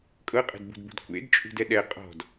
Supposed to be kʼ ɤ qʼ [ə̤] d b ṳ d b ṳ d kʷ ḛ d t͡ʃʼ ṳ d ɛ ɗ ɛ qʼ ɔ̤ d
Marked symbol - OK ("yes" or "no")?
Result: no